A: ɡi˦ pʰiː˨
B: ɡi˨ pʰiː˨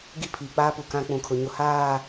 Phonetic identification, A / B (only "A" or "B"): A